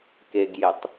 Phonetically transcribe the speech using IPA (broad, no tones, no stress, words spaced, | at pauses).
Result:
keɡjetˤ